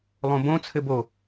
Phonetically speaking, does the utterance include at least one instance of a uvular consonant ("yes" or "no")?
no